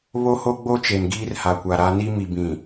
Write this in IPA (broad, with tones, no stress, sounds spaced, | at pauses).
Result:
β o˦ h o˦ ɡ͡b o˦ t͡ʃ e˨ n ɡ iː˦ r h a˨ kʷ a˨ ɾ a˦ n i˦ m i˨ b ĩ˨